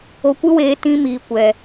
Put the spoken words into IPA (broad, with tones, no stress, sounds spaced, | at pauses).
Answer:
o˧ kʷ ɨ˦ w eː˧ t ĩ˧ m iː˨ kʷ ɛ˨